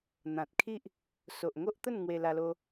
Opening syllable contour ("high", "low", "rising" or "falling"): low